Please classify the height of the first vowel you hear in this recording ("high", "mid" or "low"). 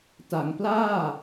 low